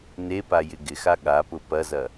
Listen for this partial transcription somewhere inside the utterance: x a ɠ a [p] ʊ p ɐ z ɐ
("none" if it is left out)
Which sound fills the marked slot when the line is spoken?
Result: p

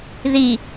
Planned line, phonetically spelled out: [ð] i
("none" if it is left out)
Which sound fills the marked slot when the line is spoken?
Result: ð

